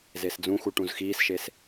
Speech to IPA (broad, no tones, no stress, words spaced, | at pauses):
zesd͡zũxu ʈũzxiːsʃes